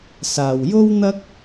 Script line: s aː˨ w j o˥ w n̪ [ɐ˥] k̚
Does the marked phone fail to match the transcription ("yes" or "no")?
no